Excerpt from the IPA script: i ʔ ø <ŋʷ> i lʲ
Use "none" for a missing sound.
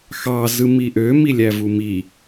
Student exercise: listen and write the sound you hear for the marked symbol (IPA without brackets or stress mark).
m